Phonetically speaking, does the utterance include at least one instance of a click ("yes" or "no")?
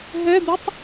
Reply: no